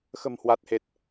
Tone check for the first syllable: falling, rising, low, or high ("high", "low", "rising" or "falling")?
low